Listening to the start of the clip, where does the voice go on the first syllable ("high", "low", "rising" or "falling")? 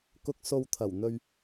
low